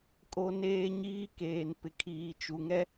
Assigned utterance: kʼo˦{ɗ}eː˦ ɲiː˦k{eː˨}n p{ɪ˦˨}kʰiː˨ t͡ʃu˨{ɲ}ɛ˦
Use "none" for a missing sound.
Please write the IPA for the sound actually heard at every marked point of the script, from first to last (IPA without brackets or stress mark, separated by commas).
n, eː˨, ɪ˨, ŋ